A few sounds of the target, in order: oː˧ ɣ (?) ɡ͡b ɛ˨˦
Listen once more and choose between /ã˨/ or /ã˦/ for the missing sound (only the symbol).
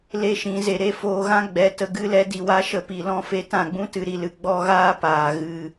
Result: ã˦